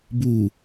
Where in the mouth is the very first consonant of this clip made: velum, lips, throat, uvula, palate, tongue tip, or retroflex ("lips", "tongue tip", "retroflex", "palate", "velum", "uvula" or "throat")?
lips